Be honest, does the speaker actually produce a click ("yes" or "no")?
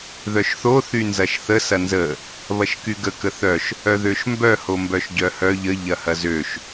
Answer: no